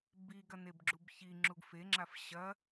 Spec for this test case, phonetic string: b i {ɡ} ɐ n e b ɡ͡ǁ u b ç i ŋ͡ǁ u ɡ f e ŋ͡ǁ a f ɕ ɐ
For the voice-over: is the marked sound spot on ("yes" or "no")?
yes